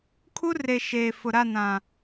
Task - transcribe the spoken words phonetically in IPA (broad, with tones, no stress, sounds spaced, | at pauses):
kʰ u˦ r e˨ ʃ eː˨ f ʊ˨ ɾ a˦˨ n ã˨